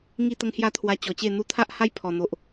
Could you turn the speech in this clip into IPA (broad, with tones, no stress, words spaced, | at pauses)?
ŋi˥˧t̪ə˦ŋhja˥˧t̪ʰwa˧ t͡ɕɔ˨˩t͡ɕe˥˧ n̪u˧t̪ʰa˦ʔ ha˦j pʰɔ˨˩n̪o˨ʔ